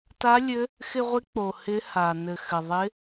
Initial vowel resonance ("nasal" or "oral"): oral